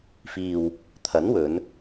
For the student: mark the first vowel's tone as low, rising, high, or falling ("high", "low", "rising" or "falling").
low